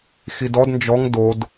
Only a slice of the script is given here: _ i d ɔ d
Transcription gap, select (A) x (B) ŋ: A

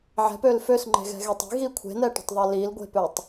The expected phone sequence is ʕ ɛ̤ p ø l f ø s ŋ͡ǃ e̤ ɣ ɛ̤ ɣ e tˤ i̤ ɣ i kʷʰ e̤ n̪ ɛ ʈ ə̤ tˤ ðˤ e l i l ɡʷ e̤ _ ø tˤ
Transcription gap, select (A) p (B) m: A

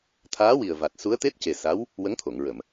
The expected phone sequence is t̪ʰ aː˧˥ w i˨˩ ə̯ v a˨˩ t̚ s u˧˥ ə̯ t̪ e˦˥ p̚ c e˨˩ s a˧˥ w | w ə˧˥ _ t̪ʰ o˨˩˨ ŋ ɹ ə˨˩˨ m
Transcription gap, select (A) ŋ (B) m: A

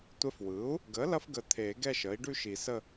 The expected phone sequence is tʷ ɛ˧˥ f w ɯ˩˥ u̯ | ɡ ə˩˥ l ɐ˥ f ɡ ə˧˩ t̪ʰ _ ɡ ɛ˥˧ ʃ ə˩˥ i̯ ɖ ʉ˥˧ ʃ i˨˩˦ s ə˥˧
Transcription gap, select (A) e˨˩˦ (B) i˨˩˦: A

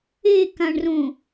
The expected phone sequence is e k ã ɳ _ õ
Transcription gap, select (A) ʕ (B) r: B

